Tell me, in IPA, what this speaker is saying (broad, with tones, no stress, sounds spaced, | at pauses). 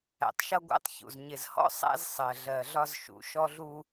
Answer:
æ̰˨ tˤ ʃ ʌ˦ ɡʷ æ̰˦ tˤ ç ṵ˨ z ɲ ɪ˨ z h ɔ̰˦ sˤ æ̰˦ z sˤ ɜ˨ ɮ ɜ˨ ɮ ɒ˦ z ʃ ṵ˨ ʃ ɔ˦ ɮ u˦